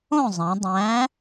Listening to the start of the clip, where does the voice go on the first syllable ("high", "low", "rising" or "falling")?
falling